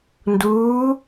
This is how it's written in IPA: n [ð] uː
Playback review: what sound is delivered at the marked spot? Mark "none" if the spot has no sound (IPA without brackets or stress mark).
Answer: d